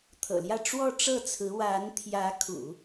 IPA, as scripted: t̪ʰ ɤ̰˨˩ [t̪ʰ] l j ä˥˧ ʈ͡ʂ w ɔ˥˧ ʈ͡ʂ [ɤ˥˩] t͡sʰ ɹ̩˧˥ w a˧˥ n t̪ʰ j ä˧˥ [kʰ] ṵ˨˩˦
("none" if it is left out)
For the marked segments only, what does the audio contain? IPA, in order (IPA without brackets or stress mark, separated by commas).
none, ɤ˥˩, kʰ